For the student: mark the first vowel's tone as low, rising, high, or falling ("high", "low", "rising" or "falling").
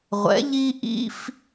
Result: rising